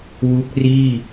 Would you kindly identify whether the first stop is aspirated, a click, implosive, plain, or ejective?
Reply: plain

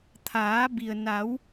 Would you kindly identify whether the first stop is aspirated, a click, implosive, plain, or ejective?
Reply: aspirated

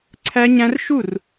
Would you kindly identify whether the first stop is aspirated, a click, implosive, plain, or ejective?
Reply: click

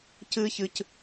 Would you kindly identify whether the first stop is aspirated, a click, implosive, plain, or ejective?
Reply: plain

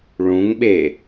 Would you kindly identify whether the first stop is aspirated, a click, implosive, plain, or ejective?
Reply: implosive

